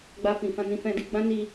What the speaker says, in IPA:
ɡ͡b a˧ f ĩ˨ f ã˧ n ĩ˧ f ɛ̃˧ d i˧ ɡ͡b ã˦ n i˧

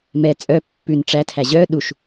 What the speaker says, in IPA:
m ɛ t͡sʼ œ pː ʉ n ʈ͡ʂ æ tʰ æ ʑ œ ɗ u ʃ

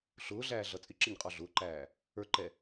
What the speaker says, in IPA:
ɬ ʊː ɮ æː ɮ ʌ t͡sʼ ɪ ǁ ɪ ɲ qʼ ɔ ɮ ʊː ǃ æː | ə˞ ǃ ɛ

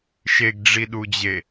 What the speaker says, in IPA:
ʃ e ɡ ɖ͡ʐ i ɗ u d͡ʑ e

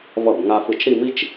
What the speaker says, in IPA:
v ʌ˧˩ b ŋ a˧ f ɯ˧˩ t͡ʃ ɾ i˥˧ m i˥ t͡ʃ

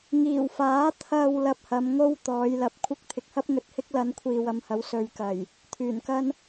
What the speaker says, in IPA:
ŋ iː˨˩ w f aː˨˥ t̪ʰ ɐ˨ w l ɐ˧ p̚ h ɐ˨˧ m ŋ o˥ w t̪ ɔː˨˧ j l ɐ˧ p̚ kʷʰ ɪ˥ k̚ t̪ʰ ɪ˨ k̚ h ɐ˥ p̚ ŋ ɵ˨ t̚ h ɪ˥ k̚ l ɐ˧ n kʷʰ iː˨ w ɐ˨˧ m h ɐ˨˥ w s ɵ˨˧ ɥ k ɐ˨˩ j | t̪ʰ yː˨˩ n k ɐ˥ n

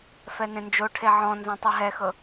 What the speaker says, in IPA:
f ɛ n ẽ n d͡ʒ o ʈʰ e ʕ ɔ̃ n z ɔ̃ tˤ ɯ ɦ ɛ x ɤ

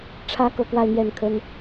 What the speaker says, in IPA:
ʈ͡ʂʰ ä˧˥ k ɤ˧˥ k w a˥˧ ɪ̯ n̪ j ɛ˥˩ n kʰ ə˥ n

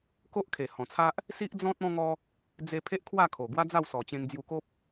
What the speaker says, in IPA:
k o˦ ʔ kʰ e˨˩ h ɔ̃˨˩ t͡sʰ a˦ ʔ | s i˦ ʔ d͡z ɔ̃˦ t̚ ɔ̃˦ ŋ ɔ˦ | d͡z e˧ pʰ e˦ ʔ kʰ w a˥˧ kʰ o˨˩ ɡ w a˦ d͡z a˥˧ w s ɔ˨˩ t͡ɕ ẽ˧ ŋ d͡z j u˧ k o˦ p̚

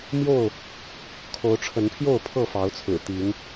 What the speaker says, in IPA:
m j o˥˨ ʊ̯ | kʰ o˨˦ ʊ̯ ʈ͡ʂʰ ə˨˦ n pʰ j o˥˨ ʊ̯ pʰ ɤ˥˨ f ɑ˨˦ ʊ̯ t͡sʰ ɹ̩˨˩ t̪ i˨˦ ŋ

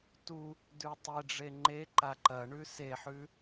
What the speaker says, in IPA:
t u | d ʉ tˤ e ɖ͡ʐ e ŋ͡ǃ e ǃ a ǃ ɐ ɳ ʉ s e ħ ʉ

